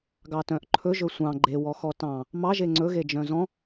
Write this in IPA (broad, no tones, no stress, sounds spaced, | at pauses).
ɡ ɑ t œ̃ ʔ ǃʰ ɵ ʒ ɵ sʷ ɑ̃ ɡ͡ǃ e w ɔ x ɔ t ɑ̃ | m ɑ ʒ e ŋ͡ǀ ɵ ɣ e d͡ʒ œ̃ z ɔ̃